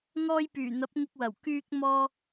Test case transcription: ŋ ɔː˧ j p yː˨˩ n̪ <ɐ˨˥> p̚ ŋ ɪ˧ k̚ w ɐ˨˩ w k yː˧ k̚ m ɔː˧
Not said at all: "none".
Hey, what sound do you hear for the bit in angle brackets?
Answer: ɐ˨˥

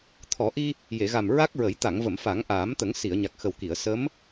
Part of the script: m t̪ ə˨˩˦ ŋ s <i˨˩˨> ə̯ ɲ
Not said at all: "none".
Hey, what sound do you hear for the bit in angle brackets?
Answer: i˨˩˨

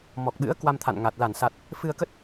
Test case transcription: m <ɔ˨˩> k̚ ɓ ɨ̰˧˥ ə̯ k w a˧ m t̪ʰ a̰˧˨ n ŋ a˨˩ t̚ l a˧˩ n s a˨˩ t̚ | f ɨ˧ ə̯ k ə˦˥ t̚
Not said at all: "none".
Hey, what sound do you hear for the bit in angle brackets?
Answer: ɔ˨˩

